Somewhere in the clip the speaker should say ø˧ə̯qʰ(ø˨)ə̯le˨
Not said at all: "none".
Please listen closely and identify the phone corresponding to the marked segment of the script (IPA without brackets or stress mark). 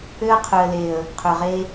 ø˨